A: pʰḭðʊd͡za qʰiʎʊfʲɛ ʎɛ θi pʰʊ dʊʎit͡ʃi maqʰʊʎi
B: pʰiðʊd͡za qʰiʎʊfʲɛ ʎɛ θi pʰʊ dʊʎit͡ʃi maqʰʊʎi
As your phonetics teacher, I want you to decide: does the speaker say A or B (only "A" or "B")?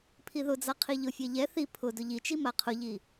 B